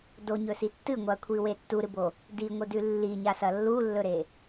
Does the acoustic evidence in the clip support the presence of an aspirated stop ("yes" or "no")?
yes